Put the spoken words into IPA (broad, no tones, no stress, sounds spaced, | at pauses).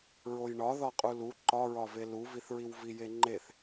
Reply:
ɹ o j ɳ ɒ ð ɒ qʼ u l u ǃ ɒ ɹ ɒ v e l u v i θ ɹ i w v i j e ŋ͡ǃ e θ